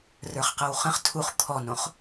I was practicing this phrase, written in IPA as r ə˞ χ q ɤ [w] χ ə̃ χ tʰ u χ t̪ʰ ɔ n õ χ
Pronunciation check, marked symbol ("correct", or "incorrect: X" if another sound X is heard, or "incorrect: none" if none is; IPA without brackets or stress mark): correct